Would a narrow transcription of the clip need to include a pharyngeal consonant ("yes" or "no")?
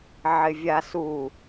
yes